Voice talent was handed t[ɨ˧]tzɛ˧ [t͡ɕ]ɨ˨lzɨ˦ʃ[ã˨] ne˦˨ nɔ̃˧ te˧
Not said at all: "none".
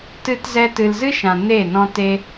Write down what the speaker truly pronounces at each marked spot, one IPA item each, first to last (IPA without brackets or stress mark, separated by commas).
ɨ˧, t, ã˨